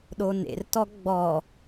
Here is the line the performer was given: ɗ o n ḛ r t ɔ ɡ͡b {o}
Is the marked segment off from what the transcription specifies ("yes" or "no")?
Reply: yes